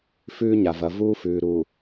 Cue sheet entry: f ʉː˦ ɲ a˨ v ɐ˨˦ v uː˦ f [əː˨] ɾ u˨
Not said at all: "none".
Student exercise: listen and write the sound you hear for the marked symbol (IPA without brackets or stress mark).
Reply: ʉː˨